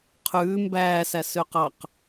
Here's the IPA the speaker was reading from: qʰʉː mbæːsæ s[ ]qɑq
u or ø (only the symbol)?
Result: ø